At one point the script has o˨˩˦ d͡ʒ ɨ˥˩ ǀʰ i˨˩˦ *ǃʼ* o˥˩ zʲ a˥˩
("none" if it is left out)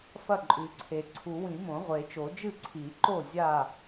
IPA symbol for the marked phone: ǃ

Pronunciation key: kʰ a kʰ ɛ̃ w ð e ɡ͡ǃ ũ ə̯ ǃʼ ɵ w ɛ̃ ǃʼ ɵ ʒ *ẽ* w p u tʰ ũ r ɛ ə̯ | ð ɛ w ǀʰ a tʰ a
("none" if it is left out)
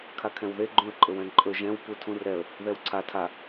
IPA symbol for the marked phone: ɛ̃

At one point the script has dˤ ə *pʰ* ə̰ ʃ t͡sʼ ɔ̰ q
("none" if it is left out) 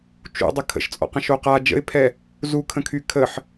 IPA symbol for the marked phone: kʰ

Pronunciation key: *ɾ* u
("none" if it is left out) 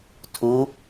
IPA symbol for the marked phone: tʰ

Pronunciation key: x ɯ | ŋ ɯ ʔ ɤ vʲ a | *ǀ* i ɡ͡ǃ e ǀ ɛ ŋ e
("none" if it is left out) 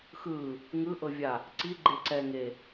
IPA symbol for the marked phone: ǀ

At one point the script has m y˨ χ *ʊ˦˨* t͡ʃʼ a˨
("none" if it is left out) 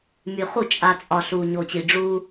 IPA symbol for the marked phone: u˦˨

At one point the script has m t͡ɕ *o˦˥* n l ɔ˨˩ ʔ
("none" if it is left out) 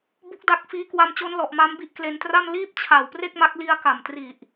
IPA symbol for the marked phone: o˦˥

